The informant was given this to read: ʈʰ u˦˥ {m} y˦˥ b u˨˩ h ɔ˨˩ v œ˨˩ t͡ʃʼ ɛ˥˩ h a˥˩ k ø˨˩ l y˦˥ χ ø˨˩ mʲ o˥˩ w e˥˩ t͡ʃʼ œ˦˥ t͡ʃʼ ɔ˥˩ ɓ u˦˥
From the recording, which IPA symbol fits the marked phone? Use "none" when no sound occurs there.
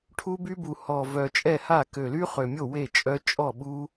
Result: b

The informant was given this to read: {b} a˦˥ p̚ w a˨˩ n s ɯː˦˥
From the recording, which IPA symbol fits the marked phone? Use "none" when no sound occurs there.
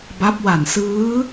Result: b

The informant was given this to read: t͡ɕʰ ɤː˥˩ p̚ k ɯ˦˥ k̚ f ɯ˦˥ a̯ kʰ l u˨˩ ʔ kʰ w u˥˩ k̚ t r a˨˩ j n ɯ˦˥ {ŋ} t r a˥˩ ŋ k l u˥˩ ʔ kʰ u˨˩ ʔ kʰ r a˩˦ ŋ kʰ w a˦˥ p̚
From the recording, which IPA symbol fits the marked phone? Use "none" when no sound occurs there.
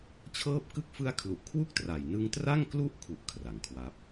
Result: ŋ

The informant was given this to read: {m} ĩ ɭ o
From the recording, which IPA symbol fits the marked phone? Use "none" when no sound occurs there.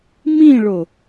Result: m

